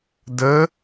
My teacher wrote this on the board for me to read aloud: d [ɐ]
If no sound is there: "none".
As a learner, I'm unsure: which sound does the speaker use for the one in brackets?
ə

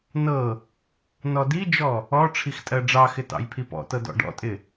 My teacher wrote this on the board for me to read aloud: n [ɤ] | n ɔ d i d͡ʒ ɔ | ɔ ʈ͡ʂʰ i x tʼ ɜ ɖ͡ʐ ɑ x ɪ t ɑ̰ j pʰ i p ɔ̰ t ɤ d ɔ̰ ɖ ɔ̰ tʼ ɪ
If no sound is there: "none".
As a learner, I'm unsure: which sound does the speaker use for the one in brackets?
ɤ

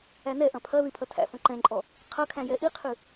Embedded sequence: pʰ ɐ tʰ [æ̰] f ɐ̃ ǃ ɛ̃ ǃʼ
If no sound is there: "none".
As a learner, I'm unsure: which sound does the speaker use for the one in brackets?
æ̰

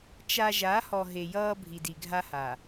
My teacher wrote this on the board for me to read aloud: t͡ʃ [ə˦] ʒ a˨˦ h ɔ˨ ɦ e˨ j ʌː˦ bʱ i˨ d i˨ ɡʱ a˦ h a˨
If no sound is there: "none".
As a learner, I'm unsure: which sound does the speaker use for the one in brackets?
a˦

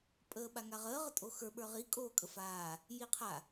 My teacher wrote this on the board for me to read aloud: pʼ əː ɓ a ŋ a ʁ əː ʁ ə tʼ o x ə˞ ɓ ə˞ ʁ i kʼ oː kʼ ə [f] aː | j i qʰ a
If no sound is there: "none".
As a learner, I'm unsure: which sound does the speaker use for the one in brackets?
f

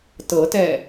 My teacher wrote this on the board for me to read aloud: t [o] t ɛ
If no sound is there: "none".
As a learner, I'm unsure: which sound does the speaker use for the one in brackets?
ɤ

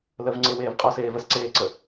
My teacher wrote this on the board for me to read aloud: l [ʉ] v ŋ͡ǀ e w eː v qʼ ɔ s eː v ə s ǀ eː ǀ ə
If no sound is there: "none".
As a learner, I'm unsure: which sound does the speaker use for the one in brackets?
ə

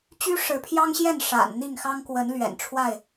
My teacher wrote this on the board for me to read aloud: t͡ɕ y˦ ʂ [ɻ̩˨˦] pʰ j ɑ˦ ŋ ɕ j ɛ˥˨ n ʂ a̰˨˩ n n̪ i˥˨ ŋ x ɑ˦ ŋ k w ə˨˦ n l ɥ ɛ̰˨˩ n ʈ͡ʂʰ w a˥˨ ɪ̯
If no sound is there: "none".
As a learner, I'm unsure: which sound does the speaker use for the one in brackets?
ɻ̩˨˦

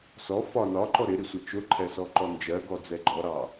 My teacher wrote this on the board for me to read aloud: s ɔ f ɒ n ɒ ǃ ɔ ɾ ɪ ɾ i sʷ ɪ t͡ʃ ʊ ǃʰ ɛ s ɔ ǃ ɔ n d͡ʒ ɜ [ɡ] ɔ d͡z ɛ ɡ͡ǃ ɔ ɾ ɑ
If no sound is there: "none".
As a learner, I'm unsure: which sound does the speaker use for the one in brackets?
ɡ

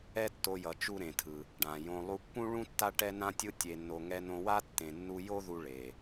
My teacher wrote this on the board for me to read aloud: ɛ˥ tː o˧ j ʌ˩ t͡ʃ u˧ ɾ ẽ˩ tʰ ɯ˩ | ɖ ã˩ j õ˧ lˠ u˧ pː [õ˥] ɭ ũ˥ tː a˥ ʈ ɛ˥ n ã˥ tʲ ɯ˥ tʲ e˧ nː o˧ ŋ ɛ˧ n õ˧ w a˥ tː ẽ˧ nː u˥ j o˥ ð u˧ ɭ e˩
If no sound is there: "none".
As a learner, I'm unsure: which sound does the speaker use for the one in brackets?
ũ˥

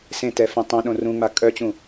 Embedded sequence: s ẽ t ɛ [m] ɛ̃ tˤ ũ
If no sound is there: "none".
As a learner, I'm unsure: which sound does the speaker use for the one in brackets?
f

